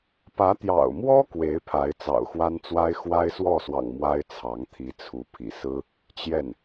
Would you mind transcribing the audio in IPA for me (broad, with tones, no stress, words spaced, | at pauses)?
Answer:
pä˧˥t̪jɑ̰˨˩ʊ̯mwɔ˥ kwe˧˥ɪ̯ pʰa˧˥ɪ̯t͡sɑ̰˨˩ʊ̯xwa˥nt͡swa˥ɪ̯ xwa˥ɪ̯swɔ˥˩swɑ̰˨˩ŋ mwa˥ɪ̯t͡sʰɑ˧˥ŋ t̪ʰi˧˥t͡sʰu˧˥ pʰḭ˨˩sɹ̩˥ | t͡ɕjɛ˥˩n